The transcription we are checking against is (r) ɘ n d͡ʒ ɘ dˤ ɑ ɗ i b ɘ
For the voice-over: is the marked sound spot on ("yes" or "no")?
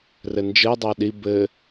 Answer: yes